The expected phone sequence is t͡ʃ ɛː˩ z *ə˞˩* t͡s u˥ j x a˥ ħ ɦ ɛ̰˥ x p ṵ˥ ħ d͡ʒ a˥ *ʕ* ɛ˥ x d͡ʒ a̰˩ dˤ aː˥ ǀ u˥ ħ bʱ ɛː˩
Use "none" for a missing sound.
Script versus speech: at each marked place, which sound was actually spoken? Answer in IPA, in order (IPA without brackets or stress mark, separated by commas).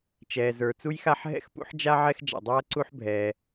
ə˞˩, ʕ